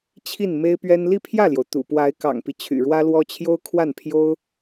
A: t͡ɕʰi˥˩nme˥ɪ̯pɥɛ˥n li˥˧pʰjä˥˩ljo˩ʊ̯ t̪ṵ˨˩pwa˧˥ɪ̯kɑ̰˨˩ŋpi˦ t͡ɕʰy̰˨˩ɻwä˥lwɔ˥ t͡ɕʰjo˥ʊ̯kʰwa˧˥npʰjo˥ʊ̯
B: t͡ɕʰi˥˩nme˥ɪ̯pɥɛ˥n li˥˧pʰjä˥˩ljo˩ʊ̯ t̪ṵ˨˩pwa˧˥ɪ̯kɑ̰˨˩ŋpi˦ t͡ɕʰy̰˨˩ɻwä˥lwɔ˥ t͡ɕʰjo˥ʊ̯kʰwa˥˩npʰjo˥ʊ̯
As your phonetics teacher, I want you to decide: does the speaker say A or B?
B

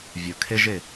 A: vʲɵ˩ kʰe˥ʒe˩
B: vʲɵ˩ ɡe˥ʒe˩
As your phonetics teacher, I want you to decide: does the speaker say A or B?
A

